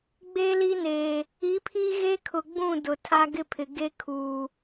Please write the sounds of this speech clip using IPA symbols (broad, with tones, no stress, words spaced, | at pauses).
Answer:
ɡ͡be˦li˦neː˨ | i˨˦pʰi˦ ɣe˦kʰʊ˨ɡ͡bũ˦˨ dʊ˨ tʰa˦ɡɪ˦pʰɪ˨ ɡe˦ kʰuː˨